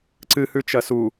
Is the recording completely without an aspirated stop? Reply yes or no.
yes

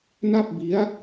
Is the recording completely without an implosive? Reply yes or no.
yes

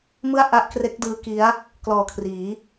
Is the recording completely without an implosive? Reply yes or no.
yes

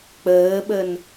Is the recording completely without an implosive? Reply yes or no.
no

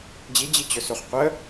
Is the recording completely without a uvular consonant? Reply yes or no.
no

